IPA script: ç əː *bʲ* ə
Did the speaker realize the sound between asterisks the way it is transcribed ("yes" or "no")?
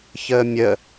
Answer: no